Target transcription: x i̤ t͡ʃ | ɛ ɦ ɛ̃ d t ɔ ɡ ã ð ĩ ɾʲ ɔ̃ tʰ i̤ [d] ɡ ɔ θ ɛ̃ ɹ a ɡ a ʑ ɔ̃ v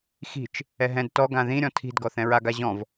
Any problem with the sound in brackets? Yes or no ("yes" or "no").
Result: no